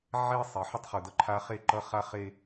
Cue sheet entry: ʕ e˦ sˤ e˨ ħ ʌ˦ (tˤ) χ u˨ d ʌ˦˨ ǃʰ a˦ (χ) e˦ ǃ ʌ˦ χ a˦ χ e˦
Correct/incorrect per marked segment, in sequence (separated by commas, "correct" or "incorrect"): correct, correct